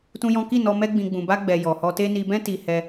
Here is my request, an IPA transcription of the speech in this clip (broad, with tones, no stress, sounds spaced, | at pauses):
t ũ˦ j ɔ̃˦ k i˦˨ n ɔ˧ m ɛ˦ ɡ͡b ĩ˧ ɡ͡b ũ˨ b a˧ ɡ͡b ɛ˨ j ɔ˨ h ɔ˧ t e˦ n i˧ b ɛ̃˦ t i˧ h ɛ˧